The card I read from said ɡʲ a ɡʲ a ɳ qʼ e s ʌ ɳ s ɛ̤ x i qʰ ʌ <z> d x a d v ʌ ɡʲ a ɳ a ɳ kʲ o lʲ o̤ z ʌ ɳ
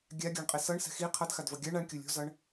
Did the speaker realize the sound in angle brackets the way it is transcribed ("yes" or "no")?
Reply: no